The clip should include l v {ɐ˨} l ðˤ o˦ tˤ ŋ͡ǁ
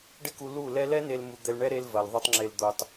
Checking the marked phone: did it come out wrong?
no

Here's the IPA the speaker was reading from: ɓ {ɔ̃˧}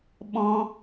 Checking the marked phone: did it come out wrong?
no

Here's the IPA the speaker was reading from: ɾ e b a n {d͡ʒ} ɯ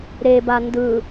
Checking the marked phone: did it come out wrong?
yes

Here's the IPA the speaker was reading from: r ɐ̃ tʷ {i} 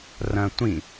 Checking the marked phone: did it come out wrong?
yes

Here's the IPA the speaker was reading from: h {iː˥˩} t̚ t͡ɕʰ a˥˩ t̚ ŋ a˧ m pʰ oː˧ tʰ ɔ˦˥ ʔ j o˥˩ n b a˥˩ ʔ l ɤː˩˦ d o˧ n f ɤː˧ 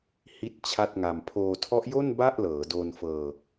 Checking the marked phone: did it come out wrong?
yes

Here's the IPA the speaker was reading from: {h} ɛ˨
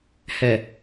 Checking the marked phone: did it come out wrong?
no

